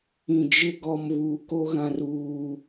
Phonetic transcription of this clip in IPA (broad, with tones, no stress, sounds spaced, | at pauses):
ĩ˨ d͡ʒ ɪ˦ ɡ ɔ˨ m β uː˨ k o˦ ɣ ã˦ r uː˦